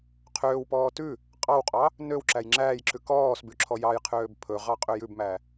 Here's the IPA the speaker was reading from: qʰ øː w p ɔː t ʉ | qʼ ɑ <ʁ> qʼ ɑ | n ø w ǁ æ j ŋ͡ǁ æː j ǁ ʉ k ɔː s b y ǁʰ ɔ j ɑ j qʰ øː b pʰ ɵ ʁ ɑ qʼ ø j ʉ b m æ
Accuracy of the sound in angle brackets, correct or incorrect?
incorrect